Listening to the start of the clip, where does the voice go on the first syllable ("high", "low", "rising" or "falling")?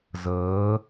rising